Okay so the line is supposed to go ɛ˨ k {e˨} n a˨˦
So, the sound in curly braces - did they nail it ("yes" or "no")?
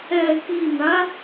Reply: no